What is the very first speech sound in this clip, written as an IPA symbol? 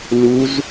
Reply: l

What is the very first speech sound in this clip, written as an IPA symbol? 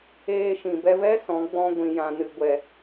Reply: eː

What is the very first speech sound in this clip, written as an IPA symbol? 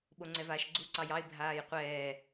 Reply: ɓ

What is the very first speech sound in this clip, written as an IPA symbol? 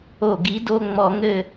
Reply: o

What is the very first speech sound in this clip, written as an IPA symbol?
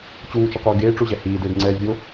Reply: t͡ɕ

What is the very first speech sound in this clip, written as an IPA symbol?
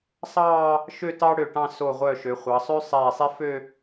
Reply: sˤ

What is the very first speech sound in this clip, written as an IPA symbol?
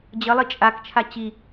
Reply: d͡ʑ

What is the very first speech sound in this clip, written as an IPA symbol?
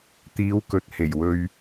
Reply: t̪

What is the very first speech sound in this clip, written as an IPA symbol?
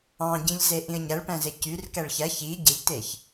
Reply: ɑ̃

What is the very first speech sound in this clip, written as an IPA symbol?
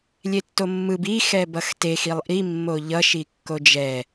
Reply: lʲ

